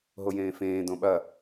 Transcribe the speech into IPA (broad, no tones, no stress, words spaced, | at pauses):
ɦojẽːfẽː dõɓɐ